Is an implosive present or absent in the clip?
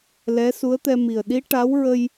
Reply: present